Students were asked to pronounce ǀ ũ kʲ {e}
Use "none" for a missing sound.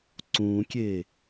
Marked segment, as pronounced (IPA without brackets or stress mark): e